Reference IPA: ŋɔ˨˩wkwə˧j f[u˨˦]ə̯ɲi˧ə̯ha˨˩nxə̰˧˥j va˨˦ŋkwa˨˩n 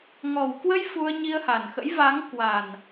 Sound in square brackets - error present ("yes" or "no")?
yes